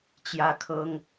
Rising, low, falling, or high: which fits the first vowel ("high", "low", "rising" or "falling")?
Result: high